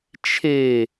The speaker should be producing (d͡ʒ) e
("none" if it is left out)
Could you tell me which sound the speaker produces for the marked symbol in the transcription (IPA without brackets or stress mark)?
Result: t͡ʃʰ